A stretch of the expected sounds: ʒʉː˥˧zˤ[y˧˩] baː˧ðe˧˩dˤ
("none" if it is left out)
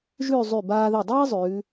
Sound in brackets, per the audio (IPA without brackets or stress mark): y˧˩